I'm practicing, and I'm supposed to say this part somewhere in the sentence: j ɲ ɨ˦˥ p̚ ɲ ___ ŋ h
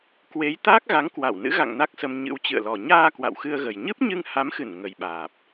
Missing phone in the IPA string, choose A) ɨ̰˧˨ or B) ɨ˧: B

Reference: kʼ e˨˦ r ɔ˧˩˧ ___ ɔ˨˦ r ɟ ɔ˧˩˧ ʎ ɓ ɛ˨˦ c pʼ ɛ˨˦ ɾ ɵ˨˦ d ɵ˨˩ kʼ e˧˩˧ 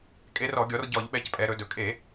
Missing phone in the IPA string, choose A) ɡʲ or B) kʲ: A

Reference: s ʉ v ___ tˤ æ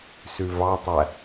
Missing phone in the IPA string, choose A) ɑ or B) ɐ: A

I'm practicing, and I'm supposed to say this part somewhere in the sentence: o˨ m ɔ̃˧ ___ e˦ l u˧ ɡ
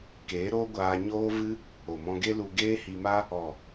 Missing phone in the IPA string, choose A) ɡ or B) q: A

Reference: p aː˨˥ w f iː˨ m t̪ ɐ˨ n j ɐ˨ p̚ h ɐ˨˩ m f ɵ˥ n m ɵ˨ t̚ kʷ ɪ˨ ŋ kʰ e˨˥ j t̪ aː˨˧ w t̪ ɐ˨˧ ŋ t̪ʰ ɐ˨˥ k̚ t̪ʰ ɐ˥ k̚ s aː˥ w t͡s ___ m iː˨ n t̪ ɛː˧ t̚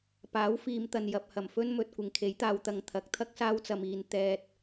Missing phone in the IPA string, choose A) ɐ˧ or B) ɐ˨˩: A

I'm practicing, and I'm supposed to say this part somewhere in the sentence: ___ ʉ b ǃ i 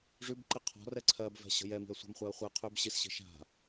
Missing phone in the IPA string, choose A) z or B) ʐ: B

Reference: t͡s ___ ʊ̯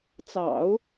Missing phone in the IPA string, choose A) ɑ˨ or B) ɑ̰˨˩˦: B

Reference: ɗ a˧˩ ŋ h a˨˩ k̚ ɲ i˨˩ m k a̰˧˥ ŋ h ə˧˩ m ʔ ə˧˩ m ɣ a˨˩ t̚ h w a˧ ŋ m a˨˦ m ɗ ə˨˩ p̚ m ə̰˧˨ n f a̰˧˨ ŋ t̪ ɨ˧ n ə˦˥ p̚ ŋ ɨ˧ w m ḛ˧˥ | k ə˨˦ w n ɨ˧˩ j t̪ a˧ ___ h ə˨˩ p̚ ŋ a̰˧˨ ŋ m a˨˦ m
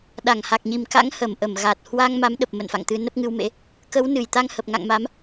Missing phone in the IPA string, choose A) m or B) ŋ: B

